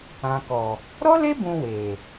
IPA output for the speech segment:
ã˨ k ɔ˨ | ɾ ɔ˦ l e˦ b ũ˧ w e˨

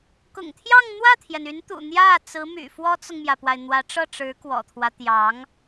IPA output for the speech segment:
k ʊ̰˨˩ ŋ t̪ʰ j ɑ˥˧ ŋ n̪ w ä˥˩ t̪ʰ j ɛ˩ n y˧˥ n t̪ ṵ˨˩ n̪ j ä˥˩ t͡s ɹ̩˧˥ m y̰˨˩ f w ɔ˥ t͡s ʊ˨ ŋ m j ä˩ p w a˩ ɪ̯ n̪ w ä˧˥ ʈ͡ʂ ɤ˥˩ ʈ͡ʂ ɻ̩˧˥ k w ɔ̰˨˩ t̪ʰ w ä˦ t̪ j ɑ˧˥ ŋ

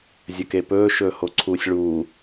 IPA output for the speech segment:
zʲ ɐ k e p ɵː ʃ ɵː h o ǀʰ uː sʲ ɭ uː

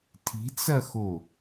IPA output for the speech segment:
tʰ i̤ t͡s ɐ x o

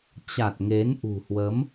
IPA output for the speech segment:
t͡ɕ a˨˩ t̚ ŋ e˨˦ n ʔ ṳ˨˩ h w ə˨˦ m

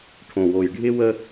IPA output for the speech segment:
ʈʰ õ˨˩ w o˨˩ j ɖʱ ɪ˥ w ə˥

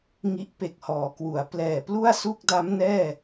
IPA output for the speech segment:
ŋ i˦˥ ʔ p e˨˩ k̚ h ɔː˩˦ k w u˩˦ a̯ p l ɛː˨˩ p l u˥˩ a̯ s u˥˩ k̚ d a˦˥ m n ɛː˥˩

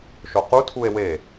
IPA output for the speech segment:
ʃ o q u tʰ u e̯ w e

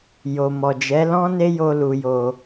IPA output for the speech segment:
j o˨ m ɔ˨ d͡ʒ ɛ˨˦ l ɔ̃˦ n e˦ j o˧ l u˨ j o˨

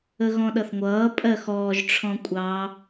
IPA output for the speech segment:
ə ɣ ɔ̃ ɗ ʌ θ ŋʷ ʌː pʼ ɜ x ɔː ʒ ʈ͡ʂʰ ɔ̃ kʷʼ ɑ

